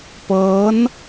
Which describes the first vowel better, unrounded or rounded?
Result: unrounded